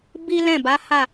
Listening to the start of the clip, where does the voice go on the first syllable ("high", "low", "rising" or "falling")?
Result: high